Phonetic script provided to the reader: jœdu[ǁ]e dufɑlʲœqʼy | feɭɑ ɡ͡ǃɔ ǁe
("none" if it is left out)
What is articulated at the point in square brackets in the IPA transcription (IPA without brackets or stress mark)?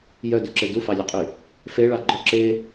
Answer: ǁ